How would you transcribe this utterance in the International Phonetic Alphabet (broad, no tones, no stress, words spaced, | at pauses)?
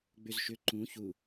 ɡ͡bʏzʃʏ ǃũ çu